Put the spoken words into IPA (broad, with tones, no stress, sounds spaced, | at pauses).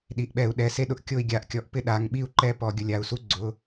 ɗ i˩˧˩ ʔ ɓ ɛ˧˩˧ u̯ ɗ ɛ˩˧˩ s e˦ ɗ ʊ˧˩ ʔ kʲ o˥˨ i̯ ɡʲ a˨˥ ʔ kʲ ɔ˨˥ ʔ p ɪ˥˨ ɗ a˩˧˩ ŋ ɓ i˥˨ u̯ ǃ ɛ˥˨ p ɔ˧˩˧ ɡʲ ʊ˩˧˩ lʲ a˧˩ u̯ s u˦ ɡ͡ǀ ʊ˩˧˩